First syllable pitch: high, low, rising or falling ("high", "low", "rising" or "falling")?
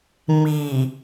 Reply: low